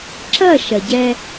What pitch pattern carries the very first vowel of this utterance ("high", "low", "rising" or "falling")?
falling